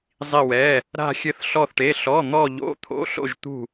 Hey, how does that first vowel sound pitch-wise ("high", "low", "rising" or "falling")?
falling